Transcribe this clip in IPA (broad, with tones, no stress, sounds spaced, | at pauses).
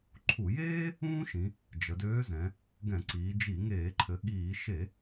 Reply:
ǃʰ u˧˩˧ j eː˥ | ũː˥ ʃ ĩ˩˧ | d͡ʒ ə˩˧ d øː˧˥ z ɛ̃˩˧ | ɡ ɛ̃˧˩˧ ǀ iː˩˧ d͡ʒ i˧˩˧ ŋ eː˧˩˧ ǃʰ ɘ˩˧ ɠ iː˧˩˧ ʃ e˧˩˧